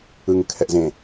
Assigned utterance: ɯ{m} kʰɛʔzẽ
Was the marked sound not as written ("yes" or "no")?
yes